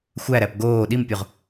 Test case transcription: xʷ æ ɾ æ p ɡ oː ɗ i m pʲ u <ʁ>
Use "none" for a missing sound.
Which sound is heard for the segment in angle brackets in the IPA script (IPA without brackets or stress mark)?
ʁ